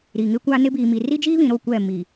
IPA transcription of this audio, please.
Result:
ɾ i˨ ŋ ɪ˦ kʷ a˦ n ɪ˦ b iː˨ m i˨ r i˦ d͡ʒ iː˦ β ĩ˨ ɾ o˦˨ kʷ ɛ˦˨ m iː˨

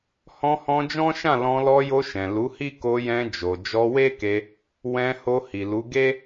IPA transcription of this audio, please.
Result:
h ɔ̃˧ h ɔ̃˧ d͡ʒ ɔ̃˦ ʃ ã˦˨ l ɔ̃˧ l ɔ˧ j o˧ ʃ ɛ̃˨ l u˨˦ h i˦ k o˧ j ɛ̃˧ d͡ʒ o˨ d͡ʒ ɔ˧ w e˦ k e˧ | w ɛ̃˧ h o˧ h i˨ l u˨˦ ɡ e˦

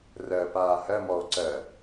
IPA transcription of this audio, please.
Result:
r ɜ p aː h ɜ m ɔ o̯ ǀ ɜ

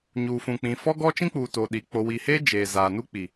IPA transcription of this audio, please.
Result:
ɲ uː˨ f ũ˨ k͡p ĩ˨ f ɔ˦ ɡ ɔ˦ t͡ʃ ĩ˦ k͡p uː˨ t o˨ ɗ i˨ k͡p o˨ w i˨ h e˦ d͡ʒ eː˨ z aː˨ n u˦ k͡p i˨

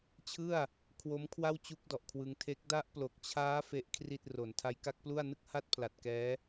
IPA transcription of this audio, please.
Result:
t͡ɕʰ ɯ˥˩ a̯ | kʰ w o˦˥ m kʰ w a˥˩ w t͡ɕ u˦˥ k̚ d ɔ˨˩ ʔ kʰ w ɯ˧ ŋ tʰ e˦˥ k̚ d a˦˥ ʔ p l o˨˩ k̚ t͡ɕʰ aː˦˥ f e˥˩ ʔ kʰ r i˥˩ t̚ r o˨˩ n tʰ a˦˥ j k a˦˥ k̚ p l u˥˩ a̯ n ɯ˦˥ k̚ h a˦˥ t̚ pʰ l a˨˩ t̚ k ɛː˦˥

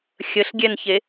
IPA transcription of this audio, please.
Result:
xʲ ə ɬ ɡʲ ɛ n ç e

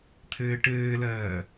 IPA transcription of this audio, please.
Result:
t̪ʰ ɘː ʈ ɘː l ɜː

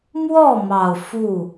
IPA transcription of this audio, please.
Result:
m w ɔ˥˨ m ɑ˨˩ ʊ̯ f u˥˨

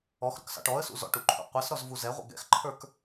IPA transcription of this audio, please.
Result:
ɔ x ɾ ʊ k s ɑ̰ ʈ ɔ ə̯ s ṵ z ɔ̰ ʈ u ǃʰ ṵ qʷ ɛ s ɾ ɔ z v u z ɛ ʁʷ ə̰ ɡ ɛ̰ x ǃʰ ə˞ k

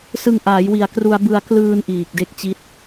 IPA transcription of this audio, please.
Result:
s ɯ˧ ŋ ʔ aː˩˦ j w i˨˩ a̯ k r u˧ a̯ b ɯ˧ a̯ k l ɯː˧ n ʔ iː˨˩ k̚ d e˦˥ k̚ t͡ɕ i˦˥ t̚

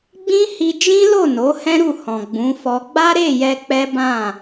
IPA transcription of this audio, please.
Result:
ɡ͡b ĩ˦ h i˧ d͡ʒ ĩ˦ l o˦˨ n o˨˦ h ɛ̃˦ ɾ u˦˨ h ɔ̃˨ ɡ͡b ũ˨˦ f ɔ˧ ɡ͡b a˦ ɾ e˦˨ j ɛ˧ k͡p ɛ˦ b ã˦˨

